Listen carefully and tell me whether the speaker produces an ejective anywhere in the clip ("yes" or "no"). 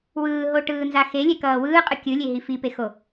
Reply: yes